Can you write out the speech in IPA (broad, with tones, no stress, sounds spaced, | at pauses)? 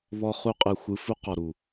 β ɔ˧ χ u˧ qʼ ɯ˨ xʷ ɯ˧ f u˦ q ɔ˨ ɾ u˨